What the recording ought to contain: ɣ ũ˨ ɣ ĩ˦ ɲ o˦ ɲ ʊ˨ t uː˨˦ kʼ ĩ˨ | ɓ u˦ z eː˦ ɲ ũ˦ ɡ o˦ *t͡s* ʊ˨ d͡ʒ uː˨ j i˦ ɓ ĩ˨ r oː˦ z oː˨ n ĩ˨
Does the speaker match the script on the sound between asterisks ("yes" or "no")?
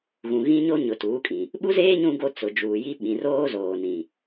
yes